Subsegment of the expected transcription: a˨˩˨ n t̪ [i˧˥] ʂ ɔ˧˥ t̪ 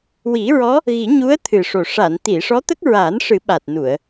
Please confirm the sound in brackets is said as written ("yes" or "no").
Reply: no